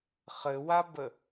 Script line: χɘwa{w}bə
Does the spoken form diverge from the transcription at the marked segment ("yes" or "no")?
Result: yes